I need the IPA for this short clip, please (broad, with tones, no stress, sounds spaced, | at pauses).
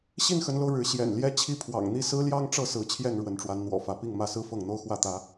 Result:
ɕ i˥˨ n x ə˨˦ n l o˧ ʊ̯ ɻ ɻ̩˨˦ ɕ j ɛ̰˨˩ n l j ɛ˦ t͡ɕʰ i˥˨ pʰ w ɑ̰˨˩ ŋ n̪ i˥˨ s ɹ̩˦ l j ɑ˦ ŋ ʈ͡ʂ ɤ˥˨ s ɹ̩˨˦ t͡ɕʰ j ɛ˥˨ n ɻ w ə˨˦ n ʈ͡ʂ w a˨˦ n n̪ w ɔ̰˨˩ f ä˨˦ p i˥˨ ŋ m ä˥˨ s ɹ̩˦ f ɤ˥˨ ŋ n̪ o˦ ʊ̯ x w ä˥˨ t̪ ä˨˦